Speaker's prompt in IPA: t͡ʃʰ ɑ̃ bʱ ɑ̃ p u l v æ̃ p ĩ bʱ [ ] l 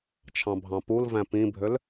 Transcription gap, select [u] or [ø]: ø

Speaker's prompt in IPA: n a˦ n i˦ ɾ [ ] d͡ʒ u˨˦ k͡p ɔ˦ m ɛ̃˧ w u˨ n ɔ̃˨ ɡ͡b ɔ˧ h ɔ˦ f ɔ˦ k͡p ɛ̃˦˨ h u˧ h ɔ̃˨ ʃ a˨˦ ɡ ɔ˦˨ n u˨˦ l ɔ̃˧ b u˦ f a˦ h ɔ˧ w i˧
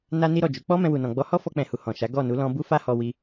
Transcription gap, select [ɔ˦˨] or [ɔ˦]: ɔ˦˨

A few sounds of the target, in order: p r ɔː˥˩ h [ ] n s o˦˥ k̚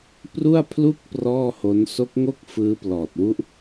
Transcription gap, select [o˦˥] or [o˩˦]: o˦˥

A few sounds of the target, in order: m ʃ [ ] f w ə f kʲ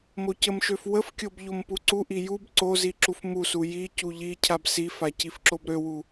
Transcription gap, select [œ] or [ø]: ø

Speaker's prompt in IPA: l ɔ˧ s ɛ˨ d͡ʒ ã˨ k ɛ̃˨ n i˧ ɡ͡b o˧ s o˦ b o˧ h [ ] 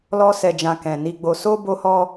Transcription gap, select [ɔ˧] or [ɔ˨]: ɔ˧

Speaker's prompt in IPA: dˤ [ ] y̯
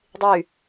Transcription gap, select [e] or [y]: e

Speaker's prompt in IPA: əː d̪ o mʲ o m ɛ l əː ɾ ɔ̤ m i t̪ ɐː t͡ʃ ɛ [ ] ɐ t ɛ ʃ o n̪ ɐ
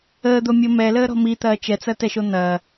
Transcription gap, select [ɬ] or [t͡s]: t͡s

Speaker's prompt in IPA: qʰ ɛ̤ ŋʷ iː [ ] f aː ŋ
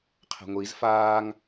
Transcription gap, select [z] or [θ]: z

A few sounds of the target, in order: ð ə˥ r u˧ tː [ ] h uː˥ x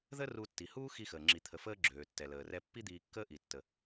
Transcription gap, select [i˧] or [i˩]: i˩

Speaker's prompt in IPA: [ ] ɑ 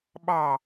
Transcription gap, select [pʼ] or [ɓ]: ɓ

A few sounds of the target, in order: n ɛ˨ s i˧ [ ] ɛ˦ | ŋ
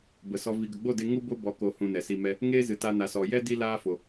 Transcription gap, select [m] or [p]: m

